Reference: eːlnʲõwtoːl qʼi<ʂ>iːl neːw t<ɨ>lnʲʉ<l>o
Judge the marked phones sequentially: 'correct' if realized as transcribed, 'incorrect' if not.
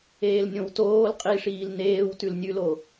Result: correct, incorrect, correct

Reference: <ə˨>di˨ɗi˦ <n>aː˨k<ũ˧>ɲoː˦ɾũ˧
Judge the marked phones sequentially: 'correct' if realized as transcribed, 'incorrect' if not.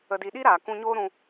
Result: correct, incorrect, correct

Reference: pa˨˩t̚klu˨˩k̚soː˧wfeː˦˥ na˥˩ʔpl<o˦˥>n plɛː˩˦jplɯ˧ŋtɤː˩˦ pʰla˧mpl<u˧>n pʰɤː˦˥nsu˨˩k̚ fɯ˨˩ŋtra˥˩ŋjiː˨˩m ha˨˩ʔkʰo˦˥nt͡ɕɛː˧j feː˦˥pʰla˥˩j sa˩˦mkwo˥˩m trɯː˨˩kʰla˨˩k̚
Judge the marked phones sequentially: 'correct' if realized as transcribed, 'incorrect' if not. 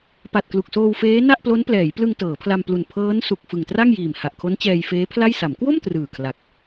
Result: correct, incorrect

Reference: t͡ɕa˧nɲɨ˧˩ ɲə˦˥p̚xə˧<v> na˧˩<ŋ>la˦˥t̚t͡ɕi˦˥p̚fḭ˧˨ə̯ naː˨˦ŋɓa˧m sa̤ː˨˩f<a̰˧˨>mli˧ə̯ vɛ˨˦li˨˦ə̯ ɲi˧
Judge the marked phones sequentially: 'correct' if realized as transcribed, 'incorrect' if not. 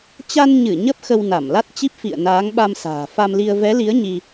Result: incorrect, incorrect, incorrect

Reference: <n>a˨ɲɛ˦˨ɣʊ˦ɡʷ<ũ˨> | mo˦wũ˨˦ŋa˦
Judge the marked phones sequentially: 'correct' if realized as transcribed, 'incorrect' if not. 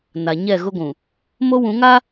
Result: correct, correct

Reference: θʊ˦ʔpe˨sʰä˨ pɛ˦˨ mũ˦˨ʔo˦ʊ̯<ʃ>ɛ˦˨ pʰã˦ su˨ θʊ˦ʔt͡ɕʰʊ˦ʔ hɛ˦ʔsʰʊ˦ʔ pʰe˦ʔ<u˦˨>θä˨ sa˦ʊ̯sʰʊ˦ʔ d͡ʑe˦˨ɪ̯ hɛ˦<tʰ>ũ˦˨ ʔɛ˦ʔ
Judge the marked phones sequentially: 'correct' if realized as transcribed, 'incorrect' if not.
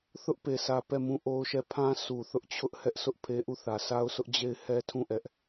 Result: correct, correct, correct

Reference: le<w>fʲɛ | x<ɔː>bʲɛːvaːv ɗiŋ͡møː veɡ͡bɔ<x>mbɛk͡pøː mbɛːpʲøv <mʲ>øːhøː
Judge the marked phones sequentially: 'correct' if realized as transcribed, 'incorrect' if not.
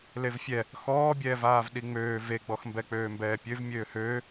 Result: incorrect, correct, correct, correct

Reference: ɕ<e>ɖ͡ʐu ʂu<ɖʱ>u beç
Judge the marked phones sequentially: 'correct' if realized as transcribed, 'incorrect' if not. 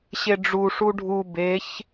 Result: correct, correct

